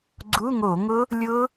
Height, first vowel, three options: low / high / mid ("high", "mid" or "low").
high